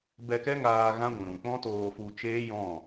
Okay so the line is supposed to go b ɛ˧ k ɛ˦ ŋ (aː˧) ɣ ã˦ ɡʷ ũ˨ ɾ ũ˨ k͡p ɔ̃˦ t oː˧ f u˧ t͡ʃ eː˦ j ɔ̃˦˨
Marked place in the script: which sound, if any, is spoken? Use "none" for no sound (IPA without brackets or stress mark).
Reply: aː˧